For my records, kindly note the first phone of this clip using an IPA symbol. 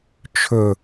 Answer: t͡ʃʰ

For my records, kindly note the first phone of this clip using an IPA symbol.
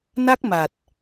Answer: n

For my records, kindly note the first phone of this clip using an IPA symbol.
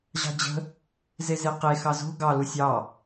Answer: ʑ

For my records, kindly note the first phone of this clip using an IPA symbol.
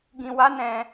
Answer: ɡ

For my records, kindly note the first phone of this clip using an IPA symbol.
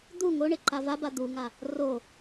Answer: d̪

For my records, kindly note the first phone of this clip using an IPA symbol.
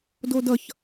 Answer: d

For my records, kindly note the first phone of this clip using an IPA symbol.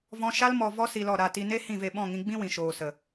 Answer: v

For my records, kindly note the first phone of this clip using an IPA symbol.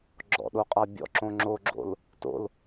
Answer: ɡ͡ǁ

